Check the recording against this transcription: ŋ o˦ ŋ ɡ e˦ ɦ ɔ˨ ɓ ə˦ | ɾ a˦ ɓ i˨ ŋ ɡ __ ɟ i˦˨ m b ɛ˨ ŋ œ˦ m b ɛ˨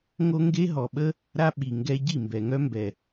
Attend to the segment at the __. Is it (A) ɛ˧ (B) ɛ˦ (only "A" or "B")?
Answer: A